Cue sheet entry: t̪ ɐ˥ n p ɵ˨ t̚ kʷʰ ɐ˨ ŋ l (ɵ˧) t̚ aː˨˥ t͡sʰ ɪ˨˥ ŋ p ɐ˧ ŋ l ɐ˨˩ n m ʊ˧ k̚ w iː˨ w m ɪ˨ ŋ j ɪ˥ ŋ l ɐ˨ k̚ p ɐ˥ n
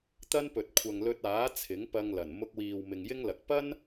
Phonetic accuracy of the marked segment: correct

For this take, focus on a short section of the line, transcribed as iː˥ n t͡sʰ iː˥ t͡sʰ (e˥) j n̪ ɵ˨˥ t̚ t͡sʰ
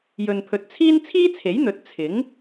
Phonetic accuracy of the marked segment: incorrect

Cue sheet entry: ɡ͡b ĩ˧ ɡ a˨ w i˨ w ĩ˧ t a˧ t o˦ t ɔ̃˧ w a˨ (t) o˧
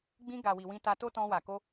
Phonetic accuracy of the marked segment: incorrect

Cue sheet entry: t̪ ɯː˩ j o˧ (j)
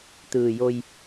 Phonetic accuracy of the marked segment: correct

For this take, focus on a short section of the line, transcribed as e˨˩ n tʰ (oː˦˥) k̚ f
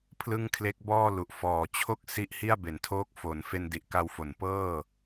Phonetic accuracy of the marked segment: correct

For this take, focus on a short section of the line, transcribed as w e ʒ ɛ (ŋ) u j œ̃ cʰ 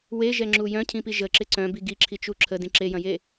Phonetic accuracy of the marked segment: incorrect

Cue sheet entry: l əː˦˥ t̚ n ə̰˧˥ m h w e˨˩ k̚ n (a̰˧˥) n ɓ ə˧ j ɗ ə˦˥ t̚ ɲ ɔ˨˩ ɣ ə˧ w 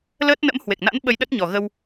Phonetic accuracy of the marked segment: correct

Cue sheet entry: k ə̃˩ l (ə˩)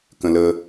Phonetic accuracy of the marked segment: correct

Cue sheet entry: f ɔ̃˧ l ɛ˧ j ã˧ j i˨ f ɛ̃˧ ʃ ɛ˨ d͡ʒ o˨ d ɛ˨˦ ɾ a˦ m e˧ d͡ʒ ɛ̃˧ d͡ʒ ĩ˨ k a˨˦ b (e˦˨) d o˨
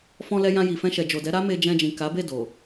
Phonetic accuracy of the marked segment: correct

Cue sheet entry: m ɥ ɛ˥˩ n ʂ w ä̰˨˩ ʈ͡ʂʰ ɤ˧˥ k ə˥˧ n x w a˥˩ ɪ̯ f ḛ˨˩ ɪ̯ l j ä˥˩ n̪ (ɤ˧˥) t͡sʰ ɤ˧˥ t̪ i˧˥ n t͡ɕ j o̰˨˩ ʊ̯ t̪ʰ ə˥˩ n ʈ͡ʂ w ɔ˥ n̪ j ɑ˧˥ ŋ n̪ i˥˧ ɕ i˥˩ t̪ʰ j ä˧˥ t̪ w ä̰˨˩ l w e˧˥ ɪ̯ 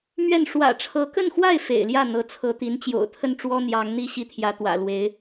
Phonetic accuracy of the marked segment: correct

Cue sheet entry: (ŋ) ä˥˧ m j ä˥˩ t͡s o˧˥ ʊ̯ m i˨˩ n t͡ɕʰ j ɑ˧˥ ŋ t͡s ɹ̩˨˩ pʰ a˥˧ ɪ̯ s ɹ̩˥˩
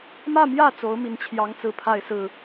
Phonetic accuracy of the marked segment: incorrect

